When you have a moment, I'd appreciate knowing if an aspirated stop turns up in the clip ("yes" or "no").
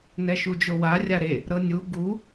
no